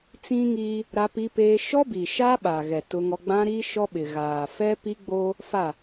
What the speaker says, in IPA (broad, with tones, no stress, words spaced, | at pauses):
t͡sĩ˦ŋiː˦ | ɾa˦pi˦peː˦ ʃɔ˦bi˨ ʃa˦ɓa˨ɣɛ˨ tʊ˦ŋɔ˦ ɡ͡bã˦ɾi˦ ʃɔ˦ɓɪ˨ɣaː˨ fɛ˦pi˦ɡ͡boː˦ | fa˦˨